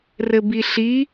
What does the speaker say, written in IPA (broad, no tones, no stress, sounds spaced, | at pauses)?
r ɘ b i ɬ i